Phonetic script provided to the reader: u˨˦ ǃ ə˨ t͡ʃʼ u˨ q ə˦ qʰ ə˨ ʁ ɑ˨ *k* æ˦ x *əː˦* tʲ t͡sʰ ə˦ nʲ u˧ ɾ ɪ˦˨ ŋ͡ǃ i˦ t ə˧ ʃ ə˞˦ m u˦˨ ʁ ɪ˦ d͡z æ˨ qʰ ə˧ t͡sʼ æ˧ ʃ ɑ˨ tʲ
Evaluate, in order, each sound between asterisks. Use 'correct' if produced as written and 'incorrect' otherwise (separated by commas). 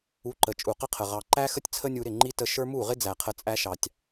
incorrect, incorrect